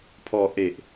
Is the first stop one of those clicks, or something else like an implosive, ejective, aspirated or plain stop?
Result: aspirated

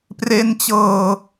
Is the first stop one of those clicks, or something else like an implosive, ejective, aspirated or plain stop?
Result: plain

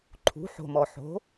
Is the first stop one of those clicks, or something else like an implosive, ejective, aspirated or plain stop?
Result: click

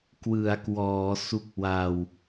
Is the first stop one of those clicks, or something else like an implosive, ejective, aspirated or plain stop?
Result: plain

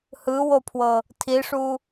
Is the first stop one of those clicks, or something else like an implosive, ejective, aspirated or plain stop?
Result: aspirated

